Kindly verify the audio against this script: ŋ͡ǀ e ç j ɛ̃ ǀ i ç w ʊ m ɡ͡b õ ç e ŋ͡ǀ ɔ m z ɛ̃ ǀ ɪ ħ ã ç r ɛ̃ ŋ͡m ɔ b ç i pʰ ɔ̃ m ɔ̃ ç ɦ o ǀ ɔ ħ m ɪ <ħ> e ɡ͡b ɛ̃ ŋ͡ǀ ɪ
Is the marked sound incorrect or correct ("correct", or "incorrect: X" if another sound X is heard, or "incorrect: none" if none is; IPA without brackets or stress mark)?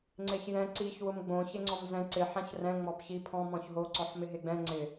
incorrect: ɦ